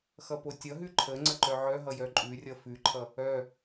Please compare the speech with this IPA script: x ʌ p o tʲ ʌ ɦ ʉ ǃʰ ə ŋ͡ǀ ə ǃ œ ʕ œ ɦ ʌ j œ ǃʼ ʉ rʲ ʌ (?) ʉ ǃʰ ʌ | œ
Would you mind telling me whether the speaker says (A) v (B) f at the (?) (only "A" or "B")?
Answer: B